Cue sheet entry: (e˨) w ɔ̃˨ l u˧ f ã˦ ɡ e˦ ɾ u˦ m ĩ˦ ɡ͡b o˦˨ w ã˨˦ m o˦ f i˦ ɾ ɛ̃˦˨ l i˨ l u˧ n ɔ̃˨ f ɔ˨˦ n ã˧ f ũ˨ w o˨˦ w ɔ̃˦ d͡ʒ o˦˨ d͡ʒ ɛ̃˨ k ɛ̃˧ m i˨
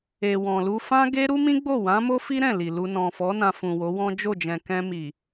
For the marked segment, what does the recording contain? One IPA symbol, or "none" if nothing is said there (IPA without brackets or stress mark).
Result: e˨